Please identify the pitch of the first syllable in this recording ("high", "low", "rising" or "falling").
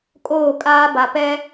falling